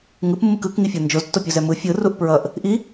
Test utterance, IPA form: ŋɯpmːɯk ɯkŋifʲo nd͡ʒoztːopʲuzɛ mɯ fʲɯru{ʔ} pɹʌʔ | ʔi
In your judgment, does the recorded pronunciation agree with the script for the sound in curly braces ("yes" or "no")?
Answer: yes